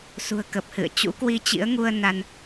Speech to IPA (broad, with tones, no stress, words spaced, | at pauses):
sṳ˨˩ə̯kə˨˩p̚hɨ̰˧˨ə̯ t͡ɕṵ˧˥kwi˧t͡ɕḭ˧˥ə̯ŋu˧ə̯ na˧n